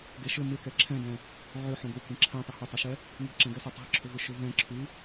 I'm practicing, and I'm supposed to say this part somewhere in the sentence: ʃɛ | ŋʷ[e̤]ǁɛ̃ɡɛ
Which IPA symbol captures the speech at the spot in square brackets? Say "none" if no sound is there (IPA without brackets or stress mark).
e̤